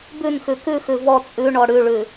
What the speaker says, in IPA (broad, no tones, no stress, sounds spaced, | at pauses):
b ʉ n x ʉ k ʉ x ʉ v ɔ t͡sʼ ʉ ɳ ɔ ɽ ʉ ɭ ʉ